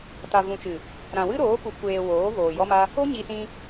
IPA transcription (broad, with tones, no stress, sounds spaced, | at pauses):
t a˨ v ũ˨ t͡ʃ ɨ˨ | ɾ ã˨ w ɨ˦ ɾ oː˨˦ p u˨ kʷ eː˨ w oː˨˦ v oː˨ j ɔ˦ m a˦ | o˦ ɲ i˧ s ĩ˧